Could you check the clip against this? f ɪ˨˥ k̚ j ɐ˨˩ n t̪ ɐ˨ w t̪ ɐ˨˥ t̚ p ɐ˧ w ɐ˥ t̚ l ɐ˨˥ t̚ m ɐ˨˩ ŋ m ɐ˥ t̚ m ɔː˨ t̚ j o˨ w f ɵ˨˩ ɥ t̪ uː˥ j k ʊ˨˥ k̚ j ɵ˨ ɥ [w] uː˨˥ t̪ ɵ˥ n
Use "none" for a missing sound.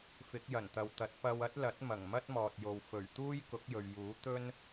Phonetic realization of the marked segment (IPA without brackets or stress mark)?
j